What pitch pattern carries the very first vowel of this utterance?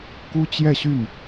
high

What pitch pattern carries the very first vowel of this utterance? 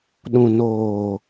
low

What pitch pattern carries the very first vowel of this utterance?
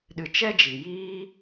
low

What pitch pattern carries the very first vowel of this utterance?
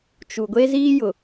low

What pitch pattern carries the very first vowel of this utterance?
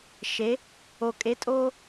rising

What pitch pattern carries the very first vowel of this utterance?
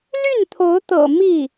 falling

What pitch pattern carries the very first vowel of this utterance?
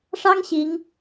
high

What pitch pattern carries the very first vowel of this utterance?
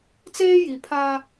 high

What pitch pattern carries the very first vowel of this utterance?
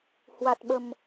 low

